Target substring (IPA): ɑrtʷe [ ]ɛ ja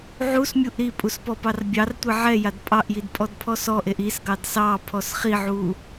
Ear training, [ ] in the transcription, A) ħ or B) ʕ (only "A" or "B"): B